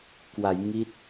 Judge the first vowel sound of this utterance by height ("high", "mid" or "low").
low